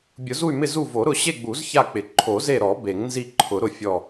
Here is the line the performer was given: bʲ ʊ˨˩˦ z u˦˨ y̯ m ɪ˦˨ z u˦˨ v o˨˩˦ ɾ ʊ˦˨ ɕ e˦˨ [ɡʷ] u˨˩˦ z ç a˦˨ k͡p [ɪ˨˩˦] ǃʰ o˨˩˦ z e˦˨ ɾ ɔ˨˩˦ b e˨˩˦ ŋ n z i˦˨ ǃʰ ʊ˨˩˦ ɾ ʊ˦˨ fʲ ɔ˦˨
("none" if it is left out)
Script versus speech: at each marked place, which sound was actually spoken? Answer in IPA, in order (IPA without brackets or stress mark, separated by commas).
ɡ͡b, ɪ˨˩˦